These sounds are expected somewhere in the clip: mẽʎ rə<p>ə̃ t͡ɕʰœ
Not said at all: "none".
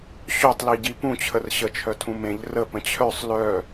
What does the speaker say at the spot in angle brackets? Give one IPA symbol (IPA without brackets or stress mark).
p